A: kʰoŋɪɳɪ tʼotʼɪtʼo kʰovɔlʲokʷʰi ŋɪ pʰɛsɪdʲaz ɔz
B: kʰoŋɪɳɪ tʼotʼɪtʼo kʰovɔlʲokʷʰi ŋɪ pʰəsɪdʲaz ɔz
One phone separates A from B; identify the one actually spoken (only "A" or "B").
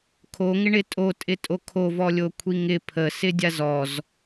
B